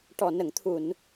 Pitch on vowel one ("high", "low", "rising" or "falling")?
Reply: low